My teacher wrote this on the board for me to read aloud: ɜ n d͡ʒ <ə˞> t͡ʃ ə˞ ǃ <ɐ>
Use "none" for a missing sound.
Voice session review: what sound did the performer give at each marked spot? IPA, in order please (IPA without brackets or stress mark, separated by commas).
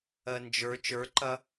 ə˞, ɐ